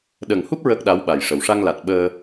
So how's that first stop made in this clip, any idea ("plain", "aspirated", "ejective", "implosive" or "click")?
implosive